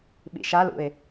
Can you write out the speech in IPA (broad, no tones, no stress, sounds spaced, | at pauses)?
ɓ ḭ ʃ a l ṵ ɪ̯